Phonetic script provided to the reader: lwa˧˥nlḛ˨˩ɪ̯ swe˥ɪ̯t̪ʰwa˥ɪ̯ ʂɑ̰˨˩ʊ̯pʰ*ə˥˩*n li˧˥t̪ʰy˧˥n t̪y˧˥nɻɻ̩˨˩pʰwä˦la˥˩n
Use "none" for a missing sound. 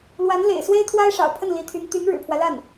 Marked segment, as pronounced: ə˥˩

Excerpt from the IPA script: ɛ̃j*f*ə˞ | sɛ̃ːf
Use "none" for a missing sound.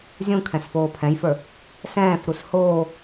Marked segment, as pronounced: f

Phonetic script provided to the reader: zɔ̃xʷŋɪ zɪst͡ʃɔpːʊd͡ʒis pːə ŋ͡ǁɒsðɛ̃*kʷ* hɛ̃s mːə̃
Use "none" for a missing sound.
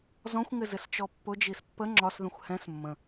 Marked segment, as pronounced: xʷ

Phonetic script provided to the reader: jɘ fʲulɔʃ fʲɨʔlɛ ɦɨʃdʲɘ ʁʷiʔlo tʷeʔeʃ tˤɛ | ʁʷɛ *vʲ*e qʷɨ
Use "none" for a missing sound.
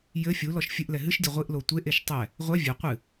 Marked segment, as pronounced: vʲ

